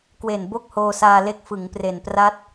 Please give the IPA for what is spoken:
k w e˨˩ n b o˥˩ k̚ h oː˧ s aː˧ l e˦˥ k̚ f ɯ˩˦ ŋ p r e˨˩ n p r a˥˩ t̚

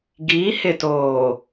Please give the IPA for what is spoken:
ɡ iː˨˦ h ɪ˨ t oː˨

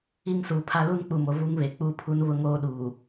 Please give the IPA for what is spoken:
i˦ ŋ s uː˨ pʰ a˦ l u˦ n k͡p u˨ m o˨ v u˦ ŋ β e˨ k͡p u˦ pʰ u˦ n β ʊ˦ ŋ oː˦ ɗ uː˨

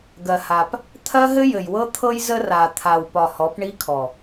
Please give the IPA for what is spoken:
ɡ ɜ˨ h a˨ p | t̪ʰ ɜ˦ ɦ ɘ˦ j ɘ˨ j w ɤ˦ t̪ʰ ɤ˦ j z ə˦ r a˨ t̪ʰ a˨ w p ɒ˨ h ɔ˨˦ p ɳ i˦ kʰ ɔ˨

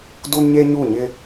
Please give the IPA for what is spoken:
d u˦ n ɲ e˦ ɲ u˦˨ ɲ ɪ˦

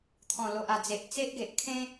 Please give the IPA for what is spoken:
t̪ʰ ɔ̃˨˩ l o˨ ʔ a˨˩ d͡z e˨ ʔ t͡s e˦ ʔ ɡ e˨ ʔ kʰ ẽ˦

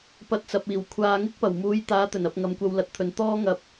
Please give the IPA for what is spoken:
p ɐ˧ t̚ t͡s ɐ˨ p̚ iː˨˩ w kʷʰ aː˨ ŋ ɪ˥ k̚ p ɐ˨˩ w m uː˨˧ j t̪ aː˨˧ t̪ ɵ˨˩ n ɐ˨ p̚ ŋ ɐ˨ m kʷ ɐ˧ w l ɐ˨˥ t̚ t̪ʰ ɵ˨ n t̪ ɔː˥ ŋ ɐ˧ p̚

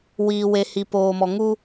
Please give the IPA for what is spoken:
w iː˨ w e˨ h i˨ p oː˨ m ɔ˨ ŋ u˦

